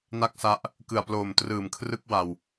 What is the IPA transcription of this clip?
na˥˩k̚sa˦˥ʔ | kɯ˨˩a̯ploː˨˩mtrɯː˨˩m kʰrɯ˥˩k̚wa˧w

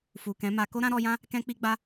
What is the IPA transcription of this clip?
fu˨kɛ̃˨˦ma˧ ko˦ɾã˦ɾɔ˧jã˦ | kɛ̃˦k͡pi˦ɡ͡ba˦

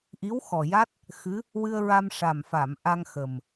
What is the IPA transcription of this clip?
ʔi˧˥wxɔ˨˩ja˦˥t̚ | xɨ˧˥ | wɨ˧ə̯ ɹa˧mʂa˨˩mfa˨˩˨m ʔa˧ŋxə˨˩m

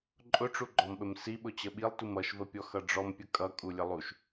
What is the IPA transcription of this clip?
ǃʼʊʈ͡ʂuɡ͡ǃɔmɓəm siɓʊ t͡ɕəɓilˠtum ʌʃvəpʲɔ xʌɖ͡ʐɔmpʲə kʼʌkʼulʲə lˠuʃ

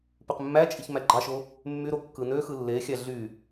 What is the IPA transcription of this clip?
pyqmːæt͡ʃʼiç mæɡ͡ǃɑʃo | mːyɾo kːɯnøxɯ lːexʲæ ɮy

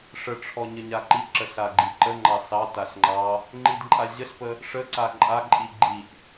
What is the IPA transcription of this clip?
ʂəʈ͡ʂʰɔ ɲəɲaǃiǁə ɬaɡ͡ǃiǃəŋ͡ǃɑ sɑtaɬ ŋ͡ǃɑ | ŋ͡ǃidǃʼaʑəɬpə | ʂəǀa ǃʼaǃʼi ɡ͡ǃiʔ

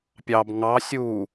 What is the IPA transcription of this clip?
pʲɑb ŋɑ sʲu

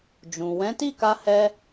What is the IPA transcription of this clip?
d͡ʒũ˨ wɛ̃˨˦ti˦˨ka˧hɛ˧

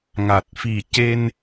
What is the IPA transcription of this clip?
ŋa˨˩t̚fi˨˩ce˧n

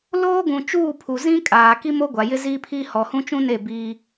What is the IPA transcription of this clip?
loː˦ɡũ˨t͡ʃuː˦˨ pʰu˨ zĩ˦kʼaː˨ ki˦mo˦ ɡʷa˨jɪ˦ziː˦pʰiː˦ hɔ˨hũ˦t͡ʃũ˦ne˦˨ biː˦

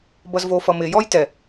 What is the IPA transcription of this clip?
bʌzvofʌmɪ jɔjtɛ

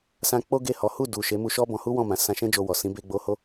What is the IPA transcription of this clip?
sã˧ k͡po˦ɡe˦˨hɔ˨˦ hu˦˨ du˨ ʃe˨˦mu˧ʃɔ˦bɔ̃˧ hu˦wɔ̃˦˨mã˨˦ sã˧ʃɛ̃˦d͡ʒo˧ wɔ˨sĩ˨˦ be˧ɡ͡bo˧ ho˦

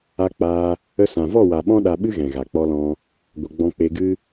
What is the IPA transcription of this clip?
a˧k͡paː˧ | ə˧sã˨vɔ˦˨wa˨ ɓɔ̃˦ɗa˧ɓɨ˦ɣɛ̃˨ ɣa˨k͡pɔ˧lɔ̃˧ | ɡʷə˨ ɡ͡bɔ̃˧k͡pe˧ɡɨ˦

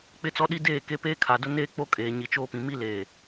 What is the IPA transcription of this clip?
k͡pɪ˦t͡sɔ˦ɗi˦ deː˦˨ke˦ peː˦kʰa˨dʊ˦ neː˦k͡po˦ kʼeː˨ɲi˨t͡ʃoː˦pĩ˨ mi˦leː˨

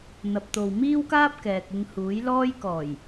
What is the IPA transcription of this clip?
n̪ɐ˨p̚t̪o˨wmiː˥wkaː˥p̚ kɛː˨k̚ɪ˧ŋ huː˨˥jlɔː˥j kɔː˨˩j

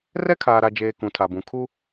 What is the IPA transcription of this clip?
rɛ˦kʰaː˨ɾa˨d͡ʒeː˨ kũ˨tʰa˨bũ˨ kʰu˦

